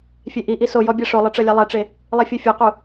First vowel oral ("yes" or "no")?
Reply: yes